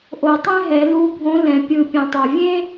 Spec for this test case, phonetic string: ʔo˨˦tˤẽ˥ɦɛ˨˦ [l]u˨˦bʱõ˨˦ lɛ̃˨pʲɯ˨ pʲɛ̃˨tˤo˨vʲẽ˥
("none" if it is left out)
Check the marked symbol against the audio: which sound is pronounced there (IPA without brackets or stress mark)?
l